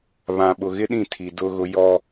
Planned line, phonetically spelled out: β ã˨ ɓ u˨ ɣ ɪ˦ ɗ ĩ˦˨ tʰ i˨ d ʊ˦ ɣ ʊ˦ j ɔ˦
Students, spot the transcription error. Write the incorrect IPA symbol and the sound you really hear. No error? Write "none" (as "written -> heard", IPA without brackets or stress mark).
u˨ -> ʊ˨